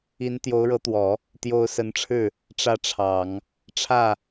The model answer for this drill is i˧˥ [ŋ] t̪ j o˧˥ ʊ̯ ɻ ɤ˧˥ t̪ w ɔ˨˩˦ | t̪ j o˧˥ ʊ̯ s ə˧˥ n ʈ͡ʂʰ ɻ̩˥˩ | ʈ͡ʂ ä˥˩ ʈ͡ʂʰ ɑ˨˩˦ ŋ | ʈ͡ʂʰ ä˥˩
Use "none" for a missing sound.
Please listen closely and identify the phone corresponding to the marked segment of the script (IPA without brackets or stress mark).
n